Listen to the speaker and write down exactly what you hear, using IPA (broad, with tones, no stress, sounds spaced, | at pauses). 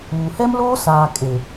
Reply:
uː˨ h ɛ˦ m l oː˦ s aː˨ kʼ e˨